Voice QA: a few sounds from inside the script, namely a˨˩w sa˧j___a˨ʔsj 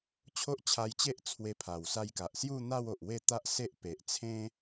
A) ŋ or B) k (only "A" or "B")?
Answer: B